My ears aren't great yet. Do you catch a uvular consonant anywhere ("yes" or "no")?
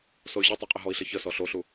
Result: yes